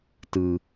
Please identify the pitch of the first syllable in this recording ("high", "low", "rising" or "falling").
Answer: low